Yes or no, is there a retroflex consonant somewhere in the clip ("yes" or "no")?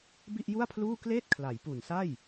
no